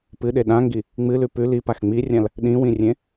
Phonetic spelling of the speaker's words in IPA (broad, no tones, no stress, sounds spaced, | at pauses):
p ɨ ɗ e ɗ ã ŋ ɡ i | ŋ͡m ɨ l ʉ p ʉ l i p a x ŋ͡m i rʲ ã l | ɗ ĩ w ĩ rʲ ẽ